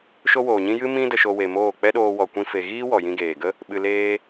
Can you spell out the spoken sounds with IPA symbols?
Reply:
ʃ o˦ w oː˨ ɲ ĩ˦ j ɨ˦ m ĩ˦ d ə˧ ʃ o˧ w e˨ m oː˦˨ k͡p ɛ˦ ɗ oː˧ w ɔ˨ kʷ ĩ˧ f e˨ ɣ iː˦ w ɔ˨ j ĩ˧ ɡ eː˨ ɡ ə˦ | ɓ ɨ˧ l eː˦

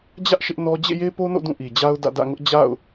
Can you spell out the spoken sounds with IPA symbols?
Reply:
d͡ʑ ä˦ ʔ ʃ ɪ˦ ʔ n ɔ˦ d͡ʑ ḛ˦˨ j e˦ p o˦ n o̰˦˨ d ũ˦˨ ʔ i˨ d͡ʑ a˦ ʊ̯ d ä̰˦˨ d ä̰˦˨ ŋ ʊ˦ ʔ d͡ʑ a̰˦˨ ʊ̯

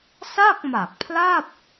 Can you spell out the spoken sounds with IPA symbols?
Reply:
s a˥˩ k̚ m a˨˩ k̚ pʰ l a˥˩ p̚

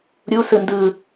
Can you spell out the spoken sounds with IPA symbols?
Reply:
ɾʲ u s ɯ n d ɯ

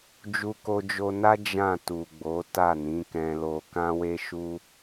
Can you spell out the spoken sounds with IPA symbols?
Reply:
d͡ʒ u˧ k o˧ d͡ʒ o˧ n a˦ d͡ʒ ã˦˨ t u˨ ɡ͡b o˨˦ t a˦˨ n ĩ˨˦ k ɛ̃˧ l o˧ k ã˦ w e˦ ʃ u˦

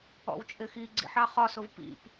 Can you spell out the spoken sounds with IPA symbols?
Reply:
ɔ̰ w t͡ʃʼ ɪ x i ɡ͡ǀ ḭ ħ ɑ χ ɒ s ʊ v p ḭ p

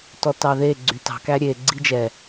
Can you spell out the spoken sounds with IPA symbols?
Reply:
t ɔ t ɑ ð e ɡ͡ǀ y t ɑ̤ k æ ɾʲ e ɡ͡ǀ i d͡ʒ ɛ

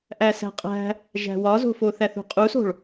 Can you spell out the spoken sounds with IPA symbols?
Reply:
ʔ æ s æ̤ qʼ æ̤ | ʒ æ̤ w ɒ z o̤ f o θ æ θ ṳ qʼ u s o̤ ɭ

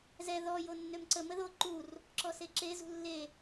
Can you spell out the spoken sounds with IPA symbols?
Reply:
z ɛ ð ɔ j o nː ø m ǀ ə m ə ð o ǃ u r | ǁ ɔ s e ǁ e z ṳ lː e

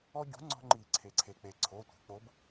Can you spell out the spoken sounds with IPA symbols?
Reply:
ɔ˦ ɟ ṳ˨˥ ŋ͡ǀ ɔ̤˦ ŋ͡ǃ i˨˩˦ ǀʰ e˩ ǀʰ e˩ k͡p e˩ ǀʰ o˩˧˩ tʷ e̤˩ k͡p o˨˥ b

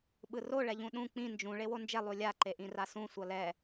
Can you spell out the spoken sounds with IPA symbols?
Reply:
ɓ ɯ r o ɭ ɛ ʎ ũ ɗ ũ k͡p ĩ n d͡ʒ ũ ɭ e w o n d͡ʒ ɛ lˠ u lʲ a ǃ e ʔ ĩ r a s ũ sʷ ʌ l ɛ

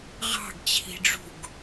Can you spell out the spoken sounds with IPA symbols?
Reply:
ʁ ɑ̤ ɡ t͡ɕʰ i̤ ɖ͡ʐ ṳ ɡ

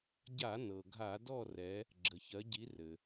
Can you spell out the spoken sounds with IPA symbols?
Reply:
ɟ a˧˩˧ n ɤ˩ ɡʱ a˧˩˧ d ɔ˦˨ r ɛ˩˧ | ɡ͡ǁ ə˩ ç ɜ˩˧ ɟ i˩˧ r ɘ˩

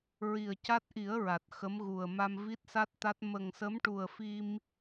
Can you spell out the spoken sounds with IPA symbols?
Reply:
ɹ i˨˩ ə̯ c a˦˥ t̚ ʔ i˨˩˦ ə̯ ɹ a˨˩ t̚ x ə˧˥ m ɣ u˨˩ ə̯ m a˧ m v i˦˥ t̚ s a˦˥ t̚ t̪ a˦˥ t̚ m ə˨˩ ŋ s ə˧˥ m ʈ u˨˩ ə̯ f i˧ m

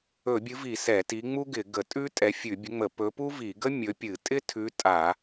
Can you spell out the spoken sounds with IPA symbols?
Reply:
ɵ˧˩˧ bʲ ɨ˨˥ v i˧˩˧ s ɛ˧˩˧ t i˨˥ ŋ͡m u˥ ɡ ɪ˧˩˧ ɡ ə˧˩˧ tʼ ʉ˥ tʼ ɛ˨˥ fʲ ʉ˧˩˧ bʲ ə˨˥ ŋ͡m ə˧˩˧ p ɵ˨˥ p u˥ v i˧˩˧ ɡ ə˥ mʲ ɵ˨˥ pʲ ɨ˧˩˧ tʼ ɪ˥ tʰ ʉ˨˥ tʼ a˧˩˧

